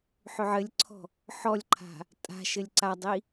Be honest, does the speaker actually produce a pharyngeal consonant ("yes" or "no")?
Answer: yes